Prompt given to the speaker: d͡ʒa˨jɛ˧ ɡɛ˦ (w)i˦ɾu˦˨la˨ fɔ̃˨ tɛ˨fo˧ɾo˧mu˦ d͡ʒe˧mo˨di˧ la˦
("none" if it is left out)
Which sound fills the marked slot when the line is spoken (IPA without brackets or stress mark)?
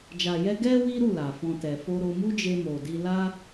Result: w